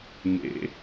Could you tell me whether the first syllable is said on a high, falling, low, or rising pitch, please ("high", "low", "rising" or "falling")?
rising